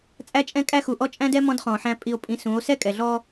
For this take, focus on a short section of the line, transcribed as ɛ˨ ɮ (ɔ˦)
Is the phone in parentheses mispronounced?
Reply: no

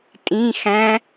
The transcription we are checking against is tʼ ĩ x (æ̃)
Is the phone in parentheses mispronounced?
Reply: no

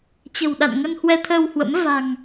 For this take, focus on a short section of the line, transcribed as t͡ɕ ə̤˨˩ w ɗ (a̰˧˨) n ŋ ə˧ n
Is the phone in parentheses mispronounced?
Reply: no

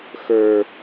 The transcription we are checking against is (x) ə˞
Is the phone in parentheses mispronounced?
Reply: no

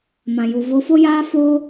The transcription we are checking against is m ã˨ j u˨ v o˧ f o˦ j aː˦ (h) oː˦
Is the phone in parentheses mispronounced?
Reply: yes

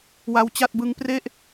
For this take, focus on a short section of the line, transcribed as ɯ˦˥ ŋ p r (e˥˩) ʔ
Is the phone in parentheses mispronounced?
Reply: no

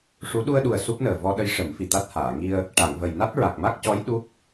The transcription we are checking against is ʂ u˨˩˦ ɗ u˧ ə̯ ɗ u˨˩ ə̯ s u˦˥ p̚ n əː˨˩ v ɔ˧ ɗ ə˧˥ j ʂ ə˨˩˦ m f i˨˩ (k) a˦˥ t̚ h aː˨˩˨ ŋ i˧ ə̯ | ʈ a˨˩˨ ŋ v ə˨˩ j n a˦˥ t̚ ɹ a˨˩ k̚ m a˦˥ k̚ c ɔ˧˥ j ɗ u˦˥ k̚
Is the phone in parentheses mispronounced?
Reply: yes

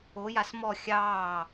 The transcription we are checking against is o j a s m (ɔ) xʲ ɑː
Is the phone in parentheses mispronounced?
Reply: no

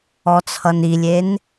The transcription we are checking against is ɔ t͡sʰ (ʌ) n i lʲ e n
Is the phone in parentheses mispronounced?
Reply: no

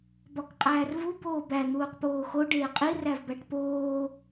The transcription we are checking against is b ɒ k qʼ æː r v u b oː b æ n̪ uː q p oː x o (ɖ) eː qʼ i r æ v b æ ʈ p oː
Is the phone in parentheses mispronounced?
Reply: no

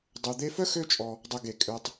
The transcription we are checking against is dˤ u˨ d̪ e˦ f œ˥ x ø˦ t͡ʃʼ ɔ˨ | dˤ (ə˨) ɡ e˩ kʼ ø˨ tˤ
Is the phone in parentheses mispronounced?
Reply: no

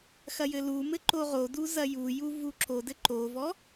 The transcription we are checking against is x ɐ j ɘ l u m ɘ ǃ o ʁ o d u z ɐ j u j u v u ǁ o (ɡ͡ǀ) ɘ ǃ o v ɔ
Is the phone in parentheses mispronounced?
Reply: yes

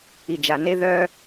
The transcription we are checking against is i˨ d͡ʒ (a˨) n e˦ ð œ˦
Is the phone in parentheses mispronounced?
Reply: no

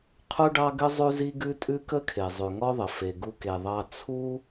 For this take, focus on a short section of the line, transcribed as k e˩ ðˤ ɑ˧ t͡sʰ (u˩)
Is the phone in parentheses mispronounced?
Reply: yes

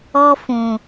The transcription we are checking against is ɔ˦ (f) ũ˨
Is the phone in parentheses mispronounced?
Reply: no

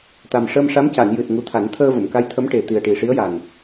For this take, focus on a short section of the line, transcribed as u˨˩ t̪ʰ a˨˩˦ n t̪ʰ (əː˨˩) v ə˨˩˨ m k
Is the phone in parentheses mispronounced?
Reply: yes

